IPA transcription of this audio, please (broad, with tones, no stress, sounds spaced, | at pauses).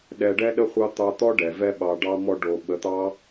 ɗ ɛ˧ ɖ ɛ˦ ɗ ə˦ χʷ ɑ˦ t̪ ɑ˧ t̪ ɔ˦ ɖ ɛ˨ v ɛ˦ ɓ ɑ˧ ɖ ɑ˦ m ɔ˧ ɖ o˨ ɓ ə˨˦ t̪ ɑ˦